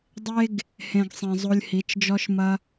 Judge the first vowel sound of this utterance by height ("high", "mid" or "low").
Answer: mid